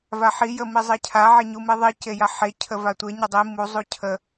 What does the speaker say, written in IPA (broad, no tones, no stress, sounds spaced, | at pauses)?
v a ħ i j ə m i zˤ e cʰ a ʕ e ɲ u m i ðˤ i c e j a ħ e cʰ ə v a tʷ e ɲ ə dˤ i m u zˤ u cʰ ə